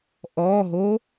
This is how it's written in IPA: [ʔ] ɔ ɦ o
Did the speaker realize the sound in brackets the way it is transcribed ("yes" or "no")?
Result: yes